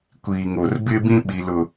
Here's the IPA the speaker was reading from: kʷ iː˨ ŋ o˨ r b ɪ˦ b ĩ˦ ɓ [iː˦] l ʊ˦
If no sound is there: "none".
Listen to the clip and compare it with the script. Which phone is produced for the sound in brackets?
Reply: i˦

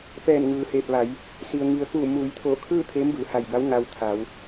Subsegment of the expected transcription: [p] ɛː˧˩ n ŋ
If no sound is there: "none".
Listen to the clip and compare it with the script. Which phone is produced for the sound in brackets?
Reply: p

